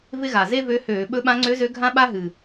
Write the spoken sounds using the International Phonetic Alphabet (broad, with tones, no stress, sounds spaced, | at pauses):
v ɪ˥ ɣ a˨˩ z e˥ v ø˧˥ h øː˧˩˧ ɓ ɵ˧˥ ɓ ã˧˥ ŋ͡ǀ ø˧˥ z ø˧˥ ɡʱ ã˥ ɓ a˥ ɦ ɨ˨˩